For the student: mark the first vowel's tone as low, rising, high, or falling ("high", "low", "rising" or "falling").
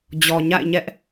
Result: low